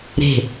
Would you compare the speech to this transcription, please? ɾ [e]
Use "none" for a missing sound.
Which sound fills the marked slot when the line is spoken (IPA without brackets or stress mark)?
e̤